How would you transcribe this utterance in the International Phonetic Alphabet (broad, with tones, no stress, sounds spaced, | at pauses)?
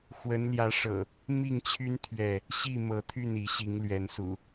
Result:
x w ə˨˦ n l j ä˨˦ ʂ ɤ̰˨˩ | m i˥˨ ŋ t͡ɕʰ y˦ n t̪ʰ ɥ ɛ˥˨ | ɕ i˥˨ m ɤ˨˦ t̪ʰ y˥˨ n i˨˦ ɕ i˨˦ ŋ l ɥ ɛ˨˦ n s ṵ˨˩